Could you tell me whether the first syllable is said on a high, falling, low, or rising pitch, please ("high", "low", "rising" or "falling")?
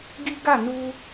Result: high